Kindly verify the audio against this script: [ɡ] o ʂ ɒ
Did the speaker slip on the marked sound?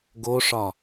no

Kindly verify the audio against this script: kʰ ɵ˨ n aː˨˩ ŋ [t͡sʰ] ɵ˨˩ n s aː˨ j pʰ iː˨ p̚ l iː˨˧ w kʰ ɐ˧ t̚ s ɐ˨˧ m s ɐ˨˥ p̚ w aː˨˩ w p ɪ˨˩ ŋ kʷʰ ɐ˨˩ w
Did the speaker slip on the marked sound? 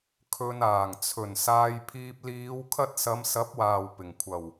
no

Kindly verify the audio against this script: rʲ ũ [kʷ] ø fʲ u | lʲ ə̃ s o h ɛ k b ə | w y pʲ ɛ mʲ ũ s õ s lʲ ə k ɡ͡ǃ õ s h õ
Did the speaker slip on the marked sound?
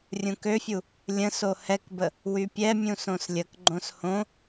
yes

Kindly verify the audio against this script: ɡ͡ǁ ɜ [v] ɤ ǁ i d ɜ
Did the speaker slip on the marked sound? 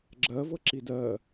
no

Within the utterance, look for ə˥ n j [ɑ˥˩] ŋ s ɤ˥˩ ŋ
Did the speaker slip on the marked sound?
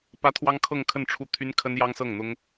yes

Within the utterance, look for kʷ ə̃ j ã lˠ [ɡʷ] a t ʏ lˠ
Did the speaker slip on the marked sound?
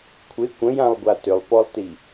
no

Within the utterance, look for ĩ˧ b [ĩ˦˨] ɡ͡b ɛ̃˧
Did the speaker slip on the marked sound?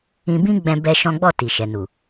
yes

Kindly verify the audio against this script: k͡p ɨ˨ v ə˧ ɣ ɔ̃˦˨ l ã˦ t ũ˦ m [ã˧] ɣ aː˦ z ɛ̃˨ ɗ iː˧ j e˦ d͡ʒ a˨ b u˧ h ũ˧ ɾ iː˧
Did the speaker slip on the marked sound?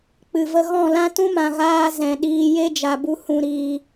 yes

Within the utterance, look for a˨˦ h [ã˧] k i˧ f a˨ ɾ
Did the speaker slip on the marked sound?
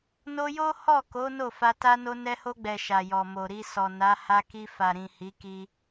yes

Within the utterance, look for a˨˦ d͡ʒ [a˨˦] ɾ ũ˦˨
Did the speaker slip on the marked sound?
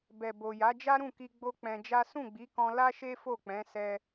yes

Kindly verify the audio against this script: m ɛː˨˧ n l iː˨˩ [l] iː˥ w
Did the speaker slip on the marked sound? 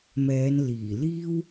no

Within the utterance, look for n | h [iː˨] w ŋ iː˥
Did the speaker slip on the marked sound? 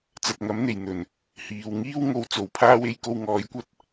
no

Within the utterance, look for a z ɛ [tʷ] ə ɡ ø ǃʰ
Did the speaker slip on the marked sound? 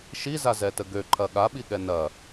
yes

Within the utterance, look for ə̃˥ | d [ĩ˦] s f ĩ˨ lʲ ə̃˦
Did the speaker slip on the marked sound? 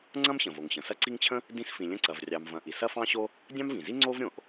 no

